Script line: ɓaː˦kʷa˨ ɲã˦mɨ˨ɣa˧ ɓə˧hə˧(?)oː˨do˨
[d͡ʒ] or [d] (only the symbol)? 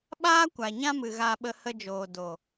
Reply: d͡ʒ